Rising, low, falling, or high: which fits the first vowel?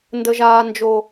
low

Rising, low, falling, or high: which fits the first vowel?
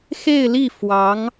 falling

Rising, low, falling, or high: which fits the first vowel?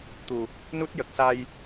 low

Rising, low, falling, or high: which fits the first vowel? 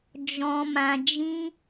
low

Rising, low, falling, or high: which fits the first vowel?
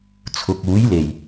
low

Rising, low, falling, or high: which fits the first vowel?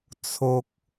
low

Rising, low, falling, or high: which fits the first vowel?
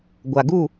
low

